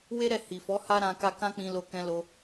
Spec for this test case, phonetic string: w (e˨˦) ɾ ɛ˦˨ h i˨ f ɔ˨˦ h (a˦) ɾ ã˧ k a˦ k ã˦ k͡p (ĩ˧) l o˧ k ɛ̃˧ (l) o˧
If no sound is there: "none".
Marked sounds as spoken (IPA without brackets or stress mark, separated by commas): e˦, a˦, ĩ˧, l